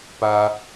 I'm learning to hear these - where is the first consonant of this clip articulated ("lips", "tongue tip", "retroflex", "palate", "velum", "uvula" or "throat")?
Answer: lips